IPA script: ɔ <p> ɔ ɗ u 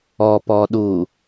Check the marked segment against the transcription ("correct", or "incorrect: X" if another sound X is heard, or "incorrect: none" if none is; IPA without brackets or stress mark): correct